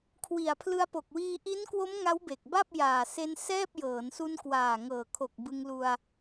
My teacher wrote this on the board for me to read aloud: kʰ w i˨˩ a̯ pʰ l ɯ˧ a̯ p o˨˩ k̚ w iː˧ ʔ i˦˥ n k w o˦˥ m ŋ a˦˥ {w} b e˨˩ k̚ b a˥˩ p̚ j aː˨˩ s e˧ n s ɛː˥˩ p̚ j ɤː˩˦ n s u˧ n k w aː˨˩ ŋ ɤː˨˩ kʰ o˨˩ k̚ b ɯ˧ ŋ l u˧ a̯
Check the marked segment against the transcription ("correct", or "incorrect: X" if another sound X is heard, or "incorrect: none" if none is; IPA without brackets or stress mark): correct